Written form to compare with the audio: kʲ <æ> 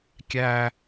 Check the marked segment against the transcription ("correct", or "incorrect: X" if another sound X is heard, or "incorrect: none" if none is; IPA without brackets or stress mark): correct